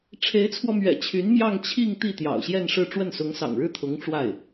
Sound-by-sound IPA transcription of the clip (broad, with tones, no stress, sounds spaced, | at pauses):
ʈ͡ʂʰ e˧˥ ɪ̯ t͡sʰ w ɔ˧ m ɥ ɛ̰˨˩ t͡ɕʰ y˧˥ n m j ɑ˥˧ ŋ t͡ɕʰ i˥˧ ŋ t̪ i˥˩ t̪ j ɑ̰˨˩ ʊ̯ ɕ j ɛ˥˧ n ʂ ɻ̩˥˧ ʈ͡ʂ w ə˥˩ n s ʊ˧˥ ŋ s ɑ̰˨˩ ŋ ɻ ɻ̩˥˩ t̪ʰ ʊ˧˥ ŋ ʈ͡ʂ w a˥˩ ɪ̯